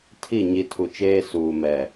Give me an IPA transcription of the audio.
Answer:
tʰ i˦˨ ɲ i˨ tʰ u˨ t͡ʃ eː˦ s uː˨ m ɛ˨

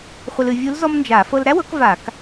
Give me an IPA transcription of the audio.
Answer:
χʷ ə˧ l ɨ˩˧ vʲ u˧˥ l z ɔ˥ m n d͡ʒ a˧˩˧ f ɤ˧ l ɾ æ˥ w ɤ˩˥ k v a˧˩˧ k

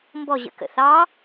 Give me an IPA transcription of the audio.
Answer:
m b ɔ ʑ ə̰ k ə̰ θ ɑ

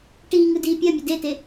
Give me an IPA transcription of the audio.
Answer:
ʈ iː ŋ ɯ d iː pʲ ɜ mʲ ɘ d e t e

